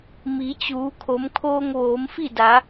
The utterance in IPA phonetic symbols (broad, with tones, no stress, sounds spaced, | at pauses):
m i˩˧ t͡ɕ uː˩˧ kʰ o˩˧ m kʰ oː˧ ŋ ʋ oː˩˧ m f i˥˨ d a˩˧